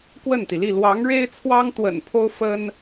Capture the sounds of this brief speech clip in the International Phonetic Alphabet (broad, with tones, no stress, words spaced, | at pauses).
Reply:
kwə˥˩nt̪i˩li˥˩ lwɑ˧˥ŋ ɻe˥ɪ̯t͡sʰwɑ˥ŋ t̪wə̰˨˩n pʰo˥ʊ̯ fə˥n